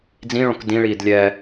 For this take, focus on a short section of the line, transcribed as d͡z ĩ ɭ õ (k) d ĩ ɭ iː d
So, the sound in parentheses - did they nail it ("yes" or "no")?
yes